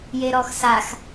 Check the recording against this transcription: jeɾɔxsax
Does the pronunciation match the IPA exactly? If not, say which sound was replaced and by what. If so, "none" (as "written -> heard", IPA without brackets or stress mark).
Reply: none